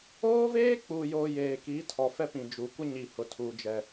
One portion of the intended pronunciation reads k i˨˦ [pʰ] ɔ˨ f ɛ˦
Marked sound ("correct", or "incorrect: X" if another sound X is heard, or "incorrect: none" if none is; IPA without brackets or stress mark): incorrect: tʰ